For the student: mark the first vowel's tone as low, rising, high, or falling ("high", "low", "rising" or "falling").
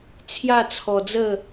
falling